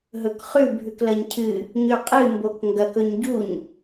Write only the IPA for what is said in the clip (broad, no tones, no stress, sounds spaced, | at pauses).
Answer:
ɦ ɵ k χ ʉ bʱ ʉ k l ɐ ɲ cʰ ɨ | ɲ ʉ qʼ ɨ m b o k ŋ ɡ ɐ k ɵ ɲ ɟ u ɲ